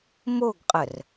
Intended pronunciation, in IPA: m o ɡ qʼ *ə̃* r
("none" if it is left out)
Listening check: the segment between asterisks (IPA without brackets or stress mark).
ə